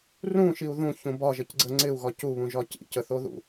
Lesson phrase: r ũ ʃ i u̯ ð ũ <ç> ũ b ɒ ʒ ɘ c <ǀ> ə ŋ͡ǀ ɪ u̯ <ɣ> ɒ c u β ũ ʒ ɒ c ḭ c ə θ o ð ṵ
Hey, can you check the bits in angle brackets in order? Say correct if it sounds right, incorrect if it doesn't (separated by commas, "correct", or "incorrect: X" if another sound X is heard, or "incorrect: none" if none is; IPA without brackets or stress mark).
correct, incorrect: ɡ͡ǀ, correct